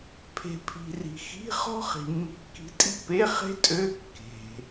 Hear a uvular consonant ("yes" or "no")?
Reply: yes